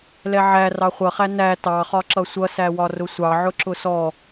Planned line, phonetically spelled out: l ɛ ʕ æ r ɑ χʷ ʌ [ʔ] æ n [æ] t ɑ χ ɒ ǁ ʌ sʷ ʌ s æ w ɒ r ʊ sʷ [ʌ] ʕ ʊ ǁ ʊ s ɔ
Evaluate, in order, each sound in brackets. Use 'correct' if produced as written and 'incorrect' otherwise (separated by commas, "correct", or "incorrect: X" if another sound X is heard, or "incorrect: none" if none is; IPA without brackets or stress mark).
incorrect: χ, correct, incorrect: ɑ